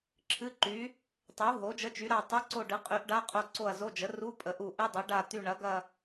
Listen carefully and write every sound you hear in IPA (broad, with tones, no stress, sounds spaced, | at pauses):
ǁʰ ɨ˧˥˧ ǃ y˩˥ | tˤ u˩˥ ɦ o˩˥ d͡ʒ ə˧˥˧ t͡ʃ y˩˥ ɾ a˦˨ tˤ u˧˥˧ ǀ o˦˨ ɖ ɨ˩˥ qʼ y˩˥ ʔ ɖ a˧˥˧ qʼ o˦˨ ǀ o˦˨ ɐ̯ z o˧˥˧ d͡ʒ ə˩˥ r u˧˥˧ pʼ ə˩˥ ʔ u˦˨ ʔ ɨ˧˥˧ dˤ y˩˥ ɖ a˦˨ t̪ y˦˨ ɳ ɐ˩˥ ɡ ɐ˦˨